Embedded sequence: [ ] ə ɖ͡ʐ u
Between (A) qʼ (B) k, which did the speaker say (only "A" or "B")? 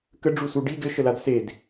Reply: B